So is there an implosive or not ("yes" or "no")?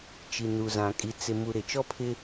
no